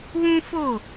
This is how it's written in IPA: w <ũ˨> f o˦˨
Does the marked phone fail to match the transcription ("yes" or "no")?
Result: yes